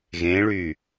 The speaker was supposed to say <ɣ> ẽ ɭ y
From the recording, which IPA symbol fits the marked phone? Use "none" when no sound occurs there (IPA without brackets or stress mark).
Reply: ɣ